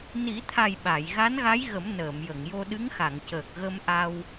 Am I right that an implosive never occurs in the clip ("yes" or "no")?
no